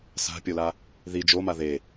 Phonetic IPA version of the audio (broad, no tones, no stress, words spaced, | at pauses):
sa̤pʲola | ði d͡ʒoma ðe